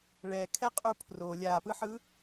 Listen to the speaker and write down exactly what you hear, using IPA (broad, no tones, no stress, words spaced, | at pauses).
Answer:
ɭɛ kʰɛqʼupʰro lʲapɯħɯ